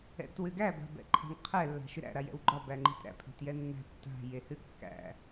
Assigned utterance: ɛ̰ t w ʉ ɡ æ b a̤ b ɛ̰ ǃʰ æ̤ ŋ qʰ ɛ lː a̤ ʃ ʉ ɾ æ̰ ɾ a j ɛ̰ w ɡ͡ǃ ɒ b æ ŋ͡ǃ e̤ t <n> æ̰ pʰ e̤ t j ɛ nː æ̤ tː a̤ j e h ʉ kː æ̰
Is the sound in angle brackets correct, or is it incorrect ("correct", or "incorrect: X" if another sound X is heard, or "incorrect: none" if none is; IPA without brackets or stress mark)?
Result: incorrect: ɾ